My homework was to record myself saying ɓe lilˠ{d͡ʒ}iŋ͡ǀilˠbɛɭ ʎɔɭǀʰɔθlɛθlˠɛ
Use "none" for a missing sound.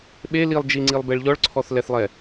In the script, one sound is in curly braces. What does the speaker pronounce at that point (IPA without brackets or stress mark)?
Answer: d͡ʒ